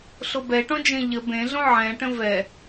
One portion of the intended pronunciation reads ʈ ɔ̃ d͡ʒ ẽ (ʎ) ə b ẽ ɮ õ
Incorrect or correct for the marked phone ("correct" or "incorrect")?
correct